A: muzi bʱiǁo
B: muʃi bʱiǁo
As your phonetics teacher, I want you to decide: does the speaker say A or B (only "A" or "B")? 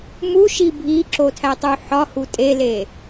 B